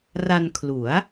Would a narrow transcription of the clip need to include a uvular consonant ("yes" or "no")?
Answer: no